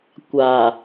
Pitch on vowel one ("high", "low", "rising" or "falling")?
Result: low